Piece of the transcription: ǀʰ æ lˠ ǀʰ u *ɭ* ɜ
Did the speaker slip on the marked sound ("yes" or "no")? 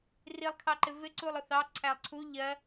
yes